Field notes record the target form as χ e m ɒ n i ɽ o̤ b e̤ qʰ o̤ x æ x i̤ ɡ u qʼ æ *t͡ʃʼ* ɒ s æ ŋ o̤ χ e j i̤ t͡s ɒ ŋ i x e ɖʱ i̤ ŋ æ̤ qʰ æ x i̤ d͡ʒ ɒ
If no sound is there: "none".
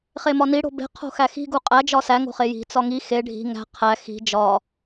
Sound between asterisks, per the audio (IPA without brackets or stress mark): d͡ʒ